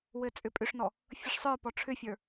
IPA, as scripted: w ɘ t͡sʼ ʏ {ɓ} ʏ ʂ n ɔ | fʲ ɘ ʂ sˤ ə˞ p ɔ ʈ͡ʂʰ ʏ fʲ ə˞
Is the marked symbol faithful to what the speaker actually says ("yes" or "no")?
no